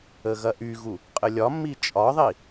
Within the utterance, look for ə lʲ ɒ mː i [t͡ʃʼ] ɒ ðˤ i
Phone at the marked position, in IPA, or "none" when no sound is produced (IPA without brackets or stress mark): t͡ʃʼ